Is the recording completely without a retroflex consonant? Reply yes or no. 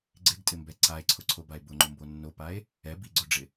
no